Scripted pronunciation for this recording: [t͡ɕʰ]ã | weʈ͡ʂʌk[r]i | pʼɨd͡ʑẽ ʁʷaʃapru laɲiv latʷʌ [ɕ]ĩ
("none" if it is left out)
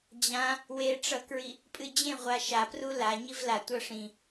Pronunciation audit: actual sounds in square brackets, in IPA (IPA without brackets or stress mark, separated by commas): d͡ʑ, ɹ, ʂ